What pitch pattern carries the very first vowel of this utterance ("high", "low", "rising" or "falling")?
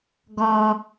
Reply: low